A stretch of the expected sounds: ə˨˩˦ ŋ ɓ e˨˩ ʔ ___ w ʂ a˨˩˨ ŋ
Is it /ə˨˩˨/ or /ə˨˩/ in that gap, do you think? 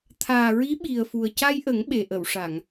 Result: ə˨˩˨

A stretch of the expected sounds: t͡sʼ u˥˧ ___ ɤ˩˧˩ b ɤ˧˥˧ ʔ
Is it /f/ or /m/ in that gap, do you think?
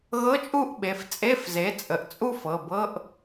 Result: f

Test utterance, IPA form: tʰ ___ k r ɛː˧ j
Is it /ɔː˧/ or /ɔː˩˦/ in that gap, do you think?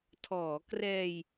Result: ɔː˩˦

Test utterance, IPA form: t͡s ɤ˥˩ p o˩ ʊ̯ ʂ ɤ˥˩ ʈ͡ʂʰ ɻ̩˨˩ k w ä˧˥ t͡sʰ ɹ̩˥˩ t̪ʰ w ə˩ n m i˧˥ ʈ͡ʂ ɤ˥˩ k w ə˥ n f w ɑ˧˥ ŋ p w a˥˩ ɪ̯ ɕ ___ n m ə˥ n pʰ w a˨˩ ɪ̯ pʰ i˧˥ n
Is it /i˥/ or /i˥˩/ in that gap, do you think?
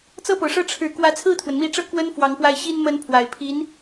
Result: i˥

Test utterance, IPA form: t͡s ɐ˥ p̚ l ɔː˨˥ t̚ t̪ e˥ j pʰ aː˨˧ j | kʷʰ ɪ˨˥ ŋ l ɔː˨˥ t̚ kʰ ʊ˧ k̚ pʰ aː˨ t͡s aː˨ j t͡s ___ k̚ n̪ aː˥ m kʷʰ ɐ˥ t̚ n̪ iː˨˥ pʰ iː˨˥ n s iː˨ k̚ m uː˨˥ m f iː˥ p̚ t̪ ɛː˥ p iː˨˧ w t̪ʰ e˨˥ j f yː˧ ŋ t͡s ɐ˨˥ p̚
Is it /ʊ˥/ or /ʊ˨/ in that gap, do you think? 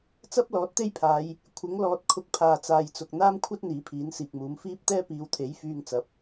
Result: ʊ˨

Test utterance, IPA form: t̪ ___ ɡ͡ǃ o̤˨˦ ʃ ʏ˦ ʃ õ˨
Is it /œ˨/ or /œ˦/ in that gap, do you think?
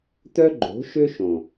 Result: œ˦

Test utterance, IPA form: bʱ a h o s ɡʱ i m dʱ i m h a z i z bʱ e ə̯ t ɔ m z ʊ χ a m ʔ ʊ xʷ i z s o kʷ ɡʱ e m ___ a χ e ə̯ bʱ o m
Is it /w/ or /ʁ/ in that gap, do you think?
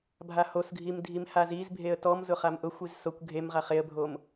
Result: ʁ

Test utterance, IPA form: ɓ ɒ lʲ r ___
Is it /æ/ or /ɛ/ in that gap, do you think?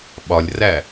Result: æ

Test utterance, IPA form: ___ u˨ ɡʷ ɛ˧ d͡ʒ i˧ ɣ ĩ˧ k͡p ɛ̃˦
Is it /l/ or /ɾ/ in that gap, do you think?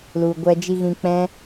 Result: l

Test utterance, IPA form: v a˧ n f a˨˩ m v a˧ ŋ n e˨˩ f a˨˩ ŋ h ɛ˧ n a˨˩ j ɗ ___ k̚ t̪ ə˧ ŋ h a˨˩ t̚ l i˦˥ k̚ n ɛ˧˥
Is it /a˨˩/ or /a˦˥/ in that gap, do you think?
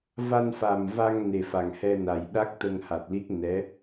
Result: a˦˥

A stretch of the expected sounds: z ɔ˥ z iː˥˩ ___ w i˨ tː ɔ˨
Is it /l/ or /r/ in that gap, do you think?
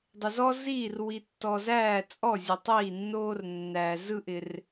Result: r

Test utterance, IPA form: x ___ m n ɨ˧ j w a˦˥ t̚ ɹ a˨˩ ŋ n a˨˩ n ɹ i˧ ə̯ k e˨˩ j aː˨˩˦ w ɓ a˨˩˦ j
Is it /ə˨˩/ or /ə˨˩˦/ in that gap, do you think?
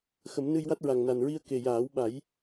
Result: ə˨˩˦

